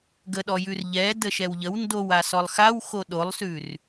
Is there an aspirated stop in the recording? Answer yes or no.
no